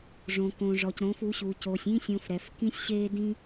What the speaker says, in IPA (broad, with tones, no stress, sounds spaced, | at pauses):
ʐ õ˨ k õ˨ ʐ ɔ˨ c ɾ õ˨˦ f u˨˦ ɕ u˨ c o˨ sʲ ĩ˦ sʲ õ˧ f ɾ ɛ˨ f k ĩ˦ sʲ ɕ e˦ d ĩ˦